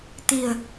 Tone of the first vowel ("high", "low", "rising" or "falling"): low